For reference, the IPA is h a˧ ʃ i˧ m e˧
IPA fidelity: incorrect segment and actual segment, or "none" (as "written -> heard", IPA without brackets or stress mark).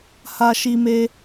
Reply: none